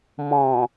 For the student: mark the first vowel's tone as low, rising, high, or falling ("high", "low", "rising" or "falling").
low